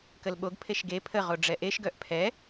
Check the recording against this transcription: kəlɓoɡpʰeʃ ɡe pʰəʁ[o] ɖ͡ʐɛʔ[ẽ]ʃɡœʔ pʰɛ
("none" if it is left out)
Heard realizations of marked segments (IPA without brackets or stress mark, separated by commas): o, e